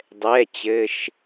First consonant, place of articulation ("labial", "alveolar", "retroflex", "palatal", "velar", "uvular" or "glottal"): alveolar